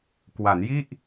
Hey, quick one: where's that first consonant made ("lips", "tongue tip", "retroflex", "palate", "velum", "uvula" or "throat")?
velum